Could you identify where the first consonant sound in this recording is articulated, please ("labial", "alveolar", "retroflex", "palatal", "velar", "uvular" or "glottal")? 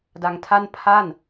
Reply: alveolar